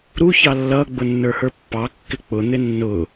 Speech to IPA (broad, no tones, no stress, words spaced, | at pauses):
ɾu çɑlːʌ ɡ͡bʊnːə˞hə˞pːɑ kːɪk͡pʊ n̪ɪnːʊ